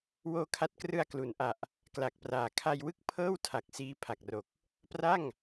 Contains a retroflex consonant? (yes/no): no